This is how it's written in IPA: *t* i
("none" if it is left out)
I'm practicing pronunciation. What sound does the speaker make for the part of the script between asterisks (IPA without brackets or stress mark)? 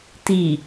t